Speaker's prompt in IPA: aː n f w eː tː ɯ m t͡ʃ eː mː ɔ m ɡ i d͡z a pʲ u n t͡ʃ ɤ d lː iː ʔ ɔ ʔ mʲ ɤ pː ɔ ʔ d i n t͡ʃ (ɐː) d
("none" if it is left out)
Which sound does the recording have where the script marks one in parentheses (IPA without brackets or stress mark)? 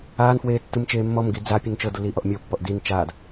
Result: aː